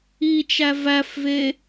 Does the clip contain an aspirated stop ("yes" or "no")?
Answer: no